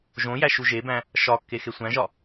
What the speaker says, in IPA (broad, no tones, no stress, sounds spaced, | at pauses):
ʒ õ j æ ʃ u ʒ e b æ̃ | ʃ ɒ kː e x e sʷ æ̃ ʒ ɒ